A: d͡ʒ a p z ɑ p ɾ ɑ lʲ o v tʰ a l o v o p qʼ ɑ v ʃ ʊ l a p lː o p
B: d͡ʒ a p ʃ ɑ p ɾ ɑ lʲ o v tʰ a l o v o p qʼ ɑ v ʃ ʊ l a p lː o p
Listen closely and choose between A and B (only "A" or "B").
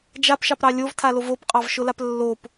B